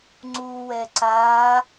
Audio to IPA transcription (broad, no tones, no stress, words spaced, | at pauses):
ŋ͡ǀuwɛ ǀa